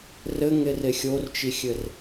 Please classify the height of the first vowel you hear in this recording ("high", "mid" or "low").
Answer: mid